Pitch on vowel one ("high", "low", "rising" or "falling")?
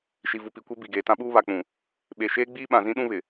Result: low